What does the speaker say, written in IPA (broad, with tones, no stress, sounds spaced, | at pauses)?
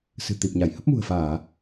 s ɨ̤˨˩ t̪ i˨˩ p̚ ɲ a˧˩ j h ə˦˥ p̚ m ṳ˨˩ ə̯ f aː˧˩˨